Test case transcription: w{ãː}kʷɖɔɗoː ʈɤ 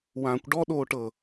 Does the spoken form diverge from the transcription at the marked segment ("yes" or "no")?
no